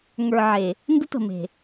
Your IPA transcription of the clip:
ŋ ə˞˨ ʕ e˨ | n d ə˦ t ə̤˨ m e̤˨

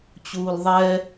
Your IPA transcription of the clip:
t͡ɕ uː l ðˤ ɛ

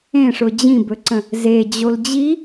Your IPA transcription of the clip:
ẽ ʂ ʊ d͡ʑ ĩ b ɵ ǀ ə̃ | z e d͡ʑ o l d͡ʑ i

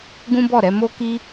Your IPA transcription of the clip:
ɡ ũ˦ b ɔ˦˨ ɾ ɛ˨˦ m o˦ k i˦

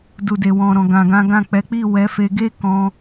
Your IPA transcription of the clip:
d u˨ d e˨ w ɔ̃˨ ɾ ɔ̃˨ ɡ ã˨ ɡ ã˨˦ ɡ ã˦˨ k͡p ɛ˨˦ k͡p i˦˨ w ɛ˨˦ f e˧ ɡ e˦ k ɔ̃˧

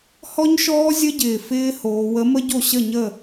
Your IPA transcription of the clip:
h ɔ˦˥ ɲ ʃ ɔː˦˥ zʲ ə˦˥ ɟ ɪː˨˩ f ɪː˦˥ h oː˩˧ w ə˨˥ m ə˦˥ ɟ o˥˨ ɕ ə˥˨ ɲ ə˥˨

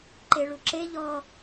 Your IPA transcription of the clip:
ǃ e ɭ u ǁ e ʎ ɔ

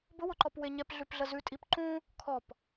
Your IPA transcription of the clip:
b ʊ w ʊ ǃ ɔ p w e ɲ ɛ p ɮ ʉ p ɮ ə z ʉ tʼ i p ǃ ũ | kʰ ɔ p

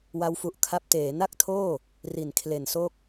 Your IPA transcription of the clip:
w a˦˥ w f u˨˩ ʔ kʰ a˦˥ p̚ t eː˩˦ n a˥˩ k̚ tʰ oː˥˩ | r i˨˩ n kʰ l e˨˩ n s o˥˩ k̚

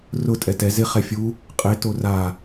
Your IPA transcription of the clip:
r ʊ tʼ ɛ t ɛ z ɪ χ ɛ fʲ u | qʼ e t o r a

